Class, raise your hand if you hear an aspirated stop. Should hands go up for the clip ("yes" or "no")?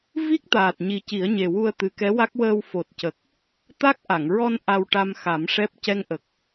no